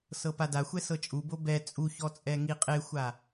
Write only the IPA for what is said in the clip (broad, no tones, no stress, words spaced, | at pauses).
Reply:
sɤpadaxʷɛ sɤt͡ʃʼubo bɛ t͡sʼuçɔ t͡sʼɛŋiqʼexʷa